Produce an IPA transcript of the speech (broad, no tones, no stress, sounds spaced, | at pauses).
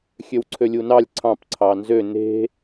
xʲ ø w ǀʰ ø lʲ u n ɑ lʲ ǀʰ ɑ̃ p ǀʰ ɑ n z ø n e̤